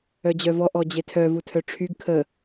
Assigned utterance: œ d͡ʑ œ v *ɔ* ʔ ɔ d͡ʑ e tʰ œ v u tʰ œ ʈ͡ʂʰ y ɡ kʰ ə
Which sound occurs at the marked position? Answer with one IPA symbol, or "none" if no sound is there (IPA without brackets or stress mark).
ɔ